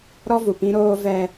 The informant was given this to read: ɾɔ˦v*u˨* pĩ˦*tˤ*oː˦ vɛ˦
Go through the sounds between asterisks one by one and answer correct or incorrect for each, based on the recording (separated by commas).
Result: correct, incorrect